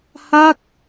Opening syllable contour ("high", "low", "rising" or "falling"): falling